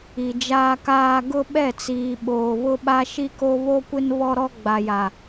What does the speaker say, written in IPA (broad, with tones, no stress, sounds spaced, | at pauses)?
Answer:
i˨ d͡ʒ aː˦ k aː˦ ɡ ʊ˦ ɓ ɛ˦˨ t͡s iː˨ ɓ oː˨ β ʊ˦ ɓ a˦ ʃ i˦ k o˦ β o˦ kʷ ɪ˦ n β ɔ˦ ɾ ɔ˦ ɡ͡b a˨ j a˨